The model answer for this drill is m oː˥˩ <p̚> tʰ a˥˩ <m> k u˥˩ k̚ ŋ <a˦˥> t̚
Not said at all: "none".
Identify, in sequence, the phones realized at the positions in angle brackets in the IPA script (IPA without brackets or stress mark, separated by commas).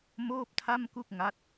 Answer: p̚, m, a˦˥